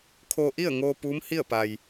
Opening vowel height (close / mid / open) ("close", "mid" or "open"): mid